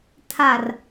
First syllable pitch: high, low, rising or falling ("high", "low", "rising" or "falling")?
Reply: low